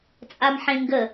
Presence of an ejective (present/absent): present